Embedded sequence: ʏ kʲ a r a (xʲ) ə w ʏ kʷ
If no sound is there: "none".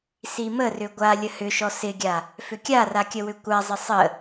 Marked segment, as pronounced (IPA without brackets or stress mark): kʲ